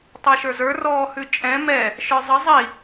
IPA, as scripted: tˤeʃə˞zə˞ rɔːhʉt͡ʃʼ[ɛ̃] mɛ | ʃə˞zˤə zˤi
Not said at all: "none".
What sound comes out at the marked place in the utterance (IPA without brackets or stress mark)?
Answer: ɛ̃